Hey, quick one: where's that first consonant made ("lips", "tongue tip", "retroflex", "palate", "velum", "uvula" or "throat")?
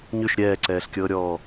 palate